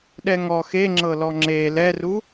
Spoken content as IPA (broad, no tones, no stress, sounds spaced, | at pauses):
ɗ ɛ ŋ ɔ x e ŋ͡ǁ ɤ l ɔ ŋ͡ǁ e l ɛ r u